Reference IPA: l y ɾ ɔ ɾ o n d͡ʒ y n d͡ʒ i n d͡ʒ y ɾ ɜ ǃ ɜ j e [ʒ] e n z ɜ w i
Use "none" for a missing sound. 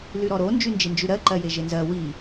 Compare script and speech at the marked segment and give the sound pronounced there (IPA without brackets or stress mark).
ʒ